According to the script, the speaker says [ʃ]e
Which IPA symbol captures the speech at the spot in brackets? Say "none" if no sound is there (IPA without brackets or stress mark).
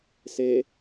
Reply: s